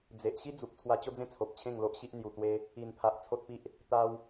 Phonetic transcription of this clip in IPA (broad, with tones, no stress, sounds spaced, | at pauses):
d͡z e˨ ʔ ɕ i˦ d͡z u˨ p̚ t͡sʰ w a˧ t͡ɕ o˦ d͡z ẽ˥˧ t͡sʰ o˨ p̚ t͡ɕʰ ẽ˥˧ ŋ l o˦ ʔ ɕ i˦ ʔ n̪ j u˨˩ t̪ w e˧ | i˨˩ n pʰ a˨ ʔ t͡sʰ o˦ t̚ p i˦ ʔ | t̪ a˧ w